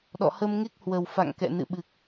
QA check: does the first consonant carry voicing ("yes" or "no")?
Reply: yes